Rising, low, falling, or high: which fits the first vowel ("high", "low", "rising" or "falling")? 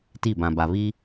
falling